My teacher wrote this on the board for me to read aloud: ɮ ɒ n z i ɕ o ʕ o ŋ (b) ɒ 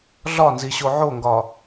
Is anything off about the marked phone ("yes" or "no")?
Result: yes